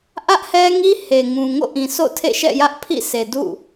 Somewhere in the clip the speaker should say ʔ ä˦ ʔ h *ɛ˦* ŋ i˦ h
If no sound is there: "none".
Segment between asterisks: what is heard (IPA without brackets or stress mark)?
ɛ˦